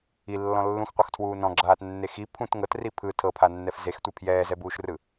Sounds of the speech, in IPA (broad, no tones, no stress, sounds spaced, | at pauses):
i lː ɔ̃ lː ũ x qʷ ɤ x tʰ w uː n ɔ̃ ɡ͡ǁ aː t nː e x i pʰ ũ t ŋ ɤ t r i pʰ ɯ tʰ ɤ pʰ a nː ɛ f z e x tʷ ɛ pʰ j ɛː z ɛ b uː ʃ r ɯ